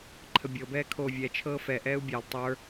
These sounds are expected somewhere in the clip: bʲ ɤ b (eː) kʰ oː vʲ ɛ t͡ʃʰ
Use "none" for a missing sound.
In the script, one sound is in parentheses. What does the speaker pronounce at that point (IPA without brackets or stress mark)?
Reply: ɛː